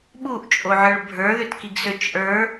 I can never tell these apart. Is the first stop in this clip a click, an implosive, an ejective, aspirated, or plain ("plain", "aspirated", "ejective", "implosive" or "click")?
implosive